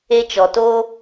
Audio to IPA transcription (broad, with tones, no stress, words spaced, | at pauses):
e˧t͡ʃɔ˨toː˦